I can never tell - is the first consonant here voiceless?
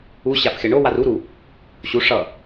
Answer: yes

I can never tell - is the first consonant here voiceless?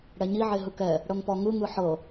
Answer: no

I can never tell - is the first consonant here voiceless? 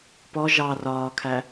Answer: yes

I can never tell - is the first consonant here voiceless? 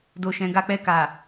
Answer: no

